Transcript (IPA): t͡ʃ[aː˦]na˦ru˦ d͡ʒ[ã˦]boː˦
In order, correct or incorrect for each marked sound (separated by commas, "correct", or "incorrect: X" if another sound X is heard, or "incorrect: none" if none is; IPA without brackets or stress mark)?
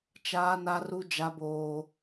correct, incorrect: a˦